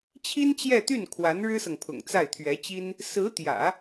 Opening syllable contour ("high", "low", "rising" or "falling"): high